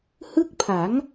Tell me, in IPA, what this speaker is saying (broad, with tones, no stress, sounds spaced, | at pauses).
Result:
h ɯ˥˩ k̚ pʰ a˩˦ ŋ